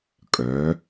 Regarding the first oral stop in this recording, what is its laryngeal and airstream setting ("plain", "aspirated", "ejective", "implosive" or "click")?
ejective